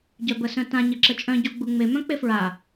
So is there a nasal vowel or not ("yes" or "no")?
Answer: yes